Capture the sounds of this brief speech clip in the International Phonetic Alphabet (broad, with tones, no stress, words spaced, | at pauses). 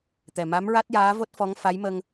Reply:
t̪ɛ˨˩ ma˧˥mɹa˦˥t̚jaː˧˥vo˦˥t̚ fɔ˧˥ŋfa˧˥jmə˧ŋ